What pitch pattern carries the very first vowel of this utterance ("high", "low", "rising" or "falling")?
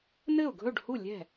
falling